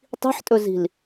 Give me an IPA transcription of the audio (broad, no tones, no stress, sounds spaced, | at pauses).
tˤ i̤ ħ tʼ ɵ z i̤ l